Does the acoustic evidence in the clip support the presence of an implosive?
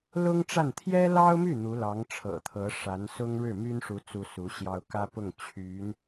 no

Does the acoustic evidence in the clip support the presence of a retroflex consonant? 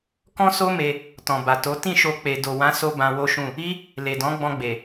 no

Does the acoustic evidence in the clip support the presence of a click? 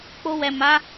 no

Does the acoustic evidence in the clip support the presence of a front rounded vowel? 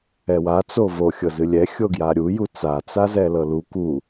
no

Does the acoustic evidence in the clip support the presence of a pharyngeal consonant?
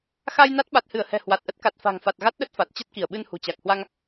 no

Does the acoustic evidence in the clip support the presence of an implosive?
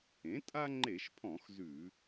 no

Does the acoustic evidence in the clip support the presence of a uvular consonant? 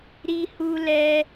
no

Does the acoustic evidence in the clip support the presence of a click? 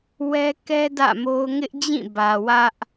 no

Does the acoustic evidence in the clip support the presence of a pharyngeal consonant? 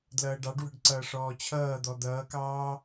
no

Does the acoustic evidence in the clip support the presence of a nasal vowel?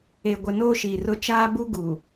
no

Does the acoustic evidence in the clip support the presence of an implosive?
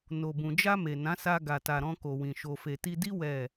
no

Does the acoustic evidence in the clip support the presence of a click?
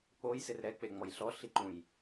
yes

